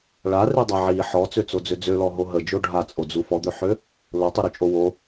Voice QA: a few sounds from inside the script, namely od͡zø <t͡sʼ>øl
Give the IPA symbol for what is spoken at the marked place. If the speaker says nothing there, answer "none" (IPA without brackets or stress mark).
d͡z